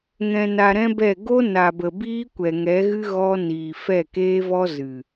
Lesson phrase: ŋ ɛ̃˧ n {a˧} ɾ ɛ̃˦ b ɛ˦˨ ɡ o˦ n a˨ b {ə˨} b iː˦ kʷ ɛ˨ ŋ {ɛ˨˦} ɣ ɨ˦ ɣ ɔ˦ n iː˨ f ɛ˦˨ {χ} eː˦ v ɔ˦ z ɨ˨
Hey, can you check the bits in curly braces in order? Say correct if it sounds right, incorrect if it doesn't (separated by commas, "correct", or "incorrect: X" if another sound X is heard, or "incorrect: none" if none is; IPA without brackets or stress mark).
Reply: correct, correct, correct, incorrect: k